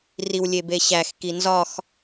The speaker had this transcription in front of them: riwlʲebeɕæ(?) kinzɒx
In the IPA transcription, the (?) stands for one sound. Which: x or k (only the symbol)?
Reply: x